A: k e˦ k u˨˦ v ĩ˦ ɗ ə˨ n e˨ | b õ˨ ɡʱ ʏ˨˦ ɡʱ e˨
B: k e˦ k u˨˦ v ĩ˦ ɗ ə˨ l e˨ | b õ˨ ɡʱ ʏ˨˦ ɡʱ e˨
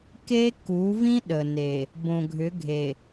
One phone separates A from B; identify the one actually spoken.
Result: A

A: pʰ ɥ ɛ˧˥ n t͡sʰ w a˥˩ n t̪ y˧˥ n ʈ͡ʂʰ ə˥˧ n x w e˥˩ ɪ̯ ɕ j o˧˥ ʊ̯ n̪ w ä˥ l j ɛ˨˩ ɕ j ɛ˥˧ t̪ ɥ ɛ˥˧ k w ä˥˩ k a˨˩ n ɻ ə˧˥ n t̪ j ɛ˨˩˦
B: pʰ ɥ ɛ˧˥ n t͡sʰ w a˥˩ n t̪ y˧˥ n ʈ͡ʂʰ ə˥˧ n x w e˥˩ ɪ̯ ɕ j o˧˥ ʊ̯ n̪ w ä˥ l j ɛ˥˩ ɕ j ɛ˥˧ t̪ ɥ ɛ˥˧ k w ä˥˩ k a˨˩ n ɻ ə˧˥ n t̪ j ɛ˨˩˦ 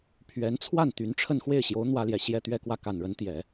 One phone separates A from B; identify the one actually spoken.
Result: A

